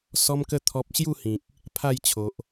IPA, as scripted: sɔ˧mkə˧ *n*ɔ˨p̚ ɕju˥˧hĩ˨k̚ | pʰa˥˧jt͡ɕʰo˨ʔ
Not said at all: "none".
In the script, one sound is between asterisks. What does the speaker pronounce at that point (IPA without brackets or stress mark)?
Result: t̪ʰ